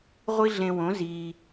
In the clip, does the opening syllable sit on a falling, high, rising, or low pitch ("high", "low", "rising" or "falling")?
high